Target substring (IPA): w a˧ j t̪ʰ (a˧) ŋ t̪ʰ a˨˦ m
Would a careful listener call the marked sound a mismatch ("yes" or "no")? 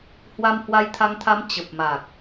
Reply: no